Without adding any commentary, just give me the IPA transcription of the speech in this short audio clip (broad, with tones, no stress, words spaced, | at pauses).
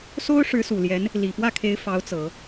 so˥ʊ̯ ʂɻ̩˧˥su˨˩ljɛ˧˥n | li˨˩pwä˥˩kʰe˧˥ɪ̯ fɑ˧˥ʊ̯t͡sɤ˨˩˦